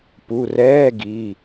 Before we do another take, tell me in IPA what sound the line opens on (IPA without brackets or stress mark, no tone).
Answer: p